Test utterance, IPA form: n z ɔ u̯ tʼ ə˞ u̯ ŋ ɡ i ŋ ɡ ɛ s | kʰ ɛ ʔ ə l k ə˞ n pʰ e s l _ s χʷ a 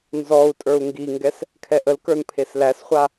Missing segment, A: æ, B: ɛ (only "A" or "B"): A